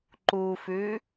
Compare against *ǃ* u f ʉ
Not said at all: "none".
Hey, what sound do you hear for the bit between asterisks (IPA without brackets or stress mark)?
ǃ